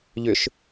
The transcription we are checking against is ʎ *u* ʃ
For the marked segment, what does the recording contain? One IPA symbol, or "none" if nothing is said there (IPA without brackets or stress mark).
ʏ